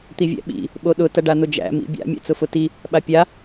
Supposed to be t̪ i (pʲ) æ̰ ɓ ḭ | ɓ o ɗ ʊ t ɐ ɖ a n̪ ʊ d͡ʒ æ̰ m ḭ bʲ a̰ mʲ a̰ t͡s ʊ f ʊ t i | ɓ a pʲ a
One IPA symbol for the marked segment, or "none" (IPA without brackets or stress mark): vʲ